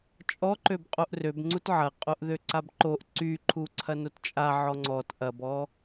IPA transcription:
t͡ʃʼ ɔ ǃ ø b qʼ o ʔ r ø b ŋ͡ǀ u t ʕ ɐ qʼ o ʔ ð ø ǀ a b ǃ o ʔ ǀ y ǃʰ u ǀʰ ɐ n o t t͡ʃʼ a ʕ ɔ ŋ͡ǀ ɔ t ʔ ɐ b ɔ

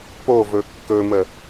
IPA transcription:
p o v ɵ kː ɵ m ə

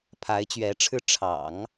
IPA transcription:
pʰ a˧˥ ɪ̯ t͡ɕ ɥ ɛ˧˥ ʈ͡ʂʰ ɻ̩˥ ʈ͡ʂʰ ɑ̰˨˩˦ ŋ

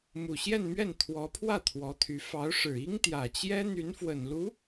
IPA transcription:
m u˨˩ ɕ j ɛ˥˧ n m ɥ ɛ˥˩ n t̪ʰ w ɔ˧˥ pʰ w ä˥˩ t̪ʰ w ɔ˧˥ t̪ʰ y˧˥ f ɑ˧˥ ʊ̯ ʂ ɻ̩˨˩ i˥ ŋ t̪ j ä˨˩ t͡ɕ j ɛ˥ n̪ y˧˥ n f w ə˨˩ n l u˧˥

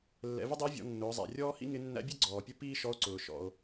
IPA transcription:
lː ɛ̰˩˧ v ɪ˥ dˤ ɪː˧˥ vʲ ɔ̰˩˧ nː ʊː˩˧ zˤ æ̰˩ rʲ ɔː˥ h ḭ˥ ŋ ɪ˧˥ nː æ̰˧˥ bʲ ɛ˥ ɡ͡ǀ ɔː˩ pʲ ʊ˥ p iː˥ ʃ ɔ˧˥ o̯ ǀ ʊː˩ ʃ ɔ̰˩ o̯

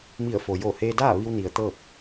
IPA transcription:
m i˧˩ ə̯ f o˩ j o˧˩ h eː˧ d aː˥˨ ʋ i˧ w n i˩ ə̯ t̪ ɤː˥˨ p̚

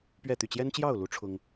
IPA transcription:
p ɥ ɛ˥˨ t̪ y˥˨ t͡ɕ j ɛ˦ n t͡ɕ j ɑ˥˨ ʊ̯ l u˨˦ ʈ͡ʂʰ ʊ˦ ŋ

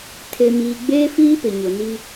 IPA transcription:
tʰ e˨ m iː˨ ɡ͡b eː˦ f iː˦ p ɪ˨ ɲ ʊ˨ n i˦

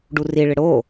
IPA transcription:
ɖ u r i ɭ ɪ ɽ o

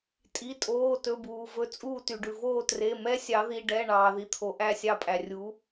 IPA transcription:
tʼ i˩˧˩ tʼ oː˩˧˩ t ɵ˩˧˩ b uː˩ v ɵ˩˥ t͡sʼ uː˦˨ t y˩ ɖ ʉ˩ v oː˦˨ t r e˩˧˩ m ɛ˧˥ sʲ ɑ˩˧ ð i˩˧˩ ɖ ɛ˩˧˩ ɳ ɑː˩ ð i˩˧ t̪ʰ o˩˧ ʔ æ˦˨ sʲ ɑ˦˨ pʼ æ˩ rʲ u˩˥

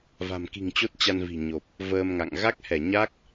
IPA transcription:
v a̤˨˩ m k i̤˨˩ ŋ t͡ɕ o˦˥ t̚ t͡ɕ a˧ n v i̤˨˩ ɲ o˨˩ p̚ | v əː˧ m ŋ a̰˧˨ ŋ ɣ a˦˥ k̚ h ɛ˧˩ ɲ a˦˥ k̚

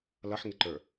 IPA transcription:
l ʌ ħ ŋ ɪ ǃ ə˞

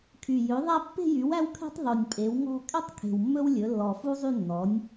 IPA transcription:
kʰ y˨˩ j ø˩˥ ðˤ æ˥˧ pː e̤˥˧ j y˩˥ w æ˥ w kʰ e̤˥ tˤ ðˤ y˨˩ nʲ pʼ e˩˥ w ŋ ɔ̤˥˧ kʼ ɛ˥ tˤ kʰ e̤˨˩ w mː ɵ˥ w lʲ ɵ˩˥ lː ɔ˨˩ f u˥ zˤ y˥˧ nː ɔ˩˥ nʲ

